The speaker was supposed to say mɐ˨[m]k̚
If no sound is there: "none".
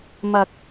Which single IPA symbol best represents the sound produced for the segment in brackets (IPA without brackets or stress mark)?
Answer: none